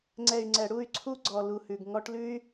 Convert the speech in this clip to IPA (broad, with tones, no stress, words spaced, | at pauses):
ŋ͡ǀɛ˨y̯ ŋ͡ǀɛ˨ɽu˦˨y̯ ǀʰu˦ɡ͡ǀɔ˨ lu˨hʉ˨ɡ ŋɔ˦ʈ lʉ˦y̯